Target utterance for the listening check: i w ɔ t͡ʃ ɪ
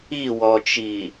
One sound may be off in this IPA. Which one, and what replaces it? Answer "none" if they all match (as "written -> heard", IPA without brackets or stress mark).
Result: ɪ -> i